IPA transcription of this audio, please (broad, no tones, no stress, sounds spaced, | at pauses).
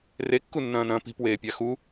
r e kː u nː ɐ̃ː n ɐ̃ː p i̤ p w eː pʲ a x u